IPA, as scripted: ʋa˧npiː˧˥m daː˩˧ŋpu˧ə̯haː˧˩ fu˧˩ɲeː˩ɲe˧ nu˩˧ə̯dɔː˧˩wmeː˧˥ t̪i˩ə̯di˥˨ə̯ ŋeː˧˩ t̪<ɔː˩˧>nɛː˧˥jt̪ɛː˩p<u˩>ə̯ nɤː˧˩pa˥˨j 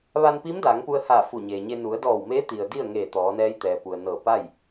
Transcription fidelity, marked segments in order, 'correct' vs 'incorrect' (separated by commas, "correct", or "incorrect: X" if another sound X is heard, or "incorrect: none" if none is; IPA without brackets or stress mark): correct, correct